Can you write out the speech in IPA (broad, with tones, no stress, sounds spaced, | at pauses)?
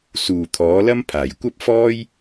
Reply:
s uː˨˩ t̪ʰ ɔː˨˥ l ɐ˥ m pʰ aː˨˩ j kʷ ɐ˥ p̚ f ɔː˥ j